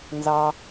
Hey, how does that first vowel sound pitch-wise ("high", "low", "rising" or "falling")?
low